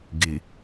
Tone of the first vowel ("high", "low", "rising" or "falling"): low